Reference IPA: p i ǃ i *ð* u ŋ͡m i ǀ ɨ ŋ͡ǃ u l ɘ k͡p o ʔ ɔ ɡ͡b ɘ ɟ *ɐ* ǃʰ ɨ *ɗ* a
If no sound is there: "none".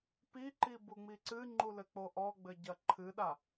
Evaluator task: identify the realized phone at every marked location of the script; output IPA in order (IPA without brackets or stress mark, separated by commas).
b, ɐ, ɗ